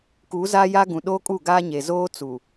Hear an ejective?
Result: yes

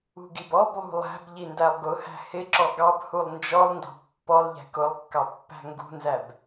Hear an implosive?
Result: no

